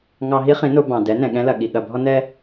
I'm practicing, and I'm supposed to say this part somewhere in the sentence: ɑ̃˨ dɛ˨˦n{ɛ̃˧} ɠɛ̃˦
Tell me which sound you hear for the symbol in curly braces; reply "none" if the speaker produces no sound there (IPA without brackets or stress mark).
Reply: ɛ̃˨